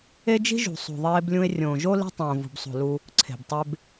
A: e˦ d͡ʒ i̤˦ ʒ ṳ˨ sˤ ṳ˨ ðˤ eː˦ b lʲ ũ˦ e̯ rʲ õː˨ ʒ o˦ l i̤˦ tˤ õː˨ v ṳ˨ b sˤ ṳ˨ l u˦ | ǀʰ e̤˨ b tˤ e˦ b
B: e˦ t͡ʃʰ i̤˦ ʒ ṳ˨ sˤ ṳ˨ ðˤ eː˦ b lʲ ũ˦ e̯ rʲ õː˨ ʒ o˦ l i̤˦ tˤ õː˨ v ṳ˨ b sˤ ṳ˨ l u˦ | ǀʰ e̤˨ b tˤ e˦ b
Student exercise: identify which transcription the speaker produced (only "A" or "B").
A